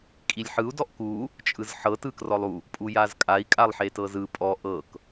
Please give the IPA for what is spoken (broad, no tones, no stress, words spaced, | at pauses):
kʼilʲħɯu̯ dɔʔku | t͡ʃʼɯzħɤ tɯkrɔlˠu | pʼujazkʼai̯ kʼalˠħetɤzɯ pʼɔ ʔɤk